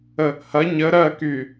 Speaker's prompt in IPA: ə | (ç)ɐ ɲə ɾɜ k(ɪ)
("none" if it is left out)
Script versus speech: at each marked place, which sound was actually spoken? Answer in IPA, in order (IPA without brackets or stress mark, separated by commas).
h, y